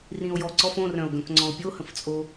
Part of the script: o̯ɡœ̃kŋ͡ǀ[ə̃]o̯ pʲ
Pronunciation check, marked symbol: incorrect: ɔ̃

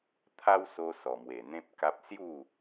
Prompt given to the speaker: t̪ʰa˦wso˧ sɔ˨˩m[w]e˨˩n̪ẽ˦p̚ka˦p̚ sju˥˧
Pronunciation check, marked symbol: correct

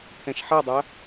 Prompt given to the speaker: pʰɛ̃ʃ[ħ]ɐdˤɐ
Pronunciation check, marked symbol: correct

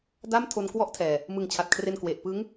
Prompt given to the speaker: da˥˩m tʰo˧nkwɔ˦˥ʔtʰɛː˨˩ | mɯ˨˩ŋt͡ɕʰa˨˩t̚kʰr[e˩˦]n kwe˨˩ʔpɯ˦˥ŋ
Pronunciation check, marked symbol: incorrect: e˧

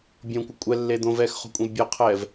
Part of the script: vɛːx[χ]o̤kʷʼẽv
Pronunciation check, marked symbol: correct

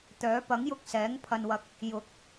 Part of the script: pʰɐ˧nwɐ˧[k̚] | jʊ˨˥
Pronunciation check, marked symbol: correct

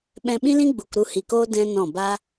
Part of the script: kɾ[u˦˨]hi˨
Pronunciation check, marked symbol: correct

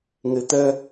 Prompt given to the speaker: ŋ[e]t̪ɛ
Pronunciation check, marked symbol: correct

